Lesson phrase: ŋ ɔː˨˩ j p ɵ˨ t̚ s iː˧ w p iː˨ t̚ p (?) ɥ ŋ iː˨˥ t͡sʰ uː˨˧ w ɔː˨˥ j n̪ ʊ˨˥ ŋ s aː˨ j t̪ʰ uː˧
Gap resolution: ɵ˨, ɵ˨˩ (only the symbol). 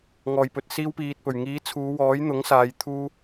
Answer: ɵ˨˩